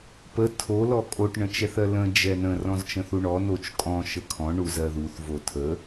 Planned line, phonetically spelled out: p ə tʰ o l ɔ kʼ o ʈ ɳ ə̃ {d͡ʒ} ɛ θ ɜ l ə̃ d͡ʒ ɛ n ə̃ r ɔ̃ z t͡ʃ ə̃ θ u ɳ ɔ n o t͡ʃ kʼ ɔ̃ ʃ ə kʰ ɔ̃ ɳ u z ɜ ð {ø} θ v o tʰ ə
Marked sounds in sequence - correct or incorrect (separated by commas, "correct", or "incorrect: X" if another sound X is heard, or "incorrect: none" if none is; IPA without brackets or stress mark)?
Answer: incorrect: t͡ʃ, incorrect: u